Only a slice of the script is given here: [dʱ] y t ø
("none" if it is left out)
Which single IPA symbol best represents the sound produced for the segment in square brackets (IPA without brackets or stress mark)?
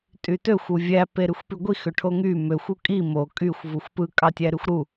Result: tʼ